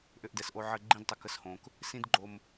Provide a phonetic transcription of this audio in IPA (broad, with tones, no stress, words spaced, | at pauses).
ʔʏ˧ʔdɛ˨sʔo˧ ʕə˧ ɡ͡ǃĩ˦dtˤə˧ kə˦shõ˧k | sĩ˦dɡ͡ǃo˧m